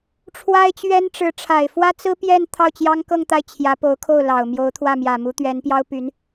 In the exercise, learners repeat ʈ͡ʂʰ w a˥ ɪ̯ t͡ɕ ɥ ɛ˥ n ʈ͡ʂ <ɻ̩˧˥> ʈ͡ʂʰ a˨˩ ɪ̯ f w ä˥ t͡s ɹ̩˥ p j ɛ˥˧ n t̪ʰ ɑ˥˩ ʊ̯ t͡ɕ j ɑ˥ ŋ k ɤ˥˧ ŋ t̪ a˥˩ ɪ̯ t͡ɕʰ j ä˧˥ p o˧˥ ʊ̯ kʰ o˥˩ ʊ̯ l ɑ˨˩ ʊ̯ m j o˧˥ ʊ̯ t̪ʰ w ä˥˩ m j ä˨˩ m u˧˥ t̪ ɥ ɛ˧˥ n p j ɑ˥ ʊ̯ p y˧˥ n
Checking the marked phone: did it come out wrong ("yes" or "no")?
no